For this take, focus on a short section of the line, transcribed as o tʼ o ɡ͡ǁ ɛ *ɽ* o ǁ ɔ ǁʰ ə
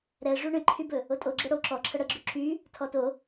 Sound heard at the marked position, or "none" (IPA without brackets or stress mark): ɽ